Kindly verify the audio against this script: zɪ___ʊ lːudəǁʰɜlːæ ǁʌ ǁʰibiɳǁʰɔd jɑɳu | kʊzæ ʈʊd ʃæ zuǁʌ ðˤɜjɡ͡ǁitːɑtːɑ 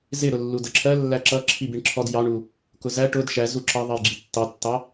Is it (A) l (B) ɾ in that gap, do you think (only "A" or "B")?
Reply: B